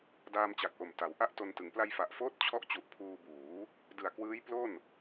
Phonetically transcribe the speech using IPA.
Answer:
d aː˧ m t͡ɕ a˨˩ k̚ ʔ o˨˩ m t a˩˦ w ʔ a˦˥ ʔ t o˧ n t ɯ˩˦ ŋ p l a˧ j f a˨˩ ʔ f oː˦˥ t̚ t͡ɕʰ ɔ˦˥ ʔ t͡ɕ u˨˩ ʔ pʰ uː˧ b uː˩˦ | d ɯ˨˩ a̯ k w ɯː˦˥ j p l o˥˩ n

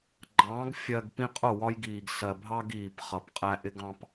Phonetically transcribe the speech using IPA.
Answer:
ɡ͡ǃ ɑ̃ː˨˦ ɡ fʲ ɜ˨ ɡ p ĩ˦ qʼ ʊ˦˨ w ɒ˦ j ɡ iː˨ ɡ s ɜ˨ bʱ ɑ˦ ɡ iː˨ p χ ʌ˨ p qʼ æ˦ ʔ ɪ˦ ɡ ɑ̃˨ p

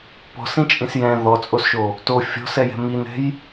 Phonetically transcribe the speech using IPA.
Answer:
p ɔ̤ s ĩ t͡ʃʼ ĩ s j ɛ̃ ð ɔ t͡sʼ o s ʃ o | t o fʲ ɔ̤ s ɛ j ɛ̤ m i n ɛ̤ j

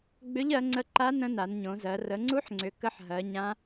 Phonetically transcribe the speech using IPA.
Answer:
ɡ͡b ʏ˦˥ ʎ ɜ˨˦ ŋ͡ǀ ə˦˥ ǃ a˦˥ n ə̃˦˥ n a˨˦ n ɲ õ˨˦ z ɜ˨˦ r ə˨˦ ŋ͡ǀ u˦˥ ħ ŋ͡ǀ ʏ˨˦ k ə˦˥ ħ ɦ ɜ˨˦ ɲ ã˦˥

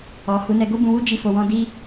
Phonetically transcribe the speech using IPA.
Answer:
ɔ˨ h u˨˦ n ɛ˧ ɡ o˦ b ũ˧ w u˦ d͡ʒ i˦˨ f o˧ w ɔ̃˦ d i˦

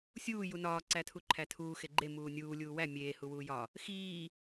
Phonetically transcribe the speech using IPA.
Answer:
sʲ uː j u n ɒː ǀ æ tʰ u ǃʰ æ tʰ uː x e ɡ͡ǃ e m uː nʲ uː lʲ uː w æ mʲ eː h u w uː j ɒ | x iː

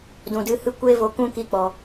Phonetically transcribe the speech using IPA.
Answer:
d ũ˨ d ɨ˧ h ɨ˦ kʷ eː˦ v o˧ k ũ˦ k i˧ k͡p ɔ˨

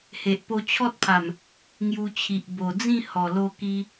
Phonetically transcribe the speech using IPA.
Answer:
h e˨ ʔ p o˧ t͡ɕʰ ɔ˦ t̚ pʰ a˨˩ m | ŋ j u˧ t͡ɕʰ i˨ ʔ b o˨˩ d͡z ĩ˥˧ h ɔ˨˩ l o˧ k i˧

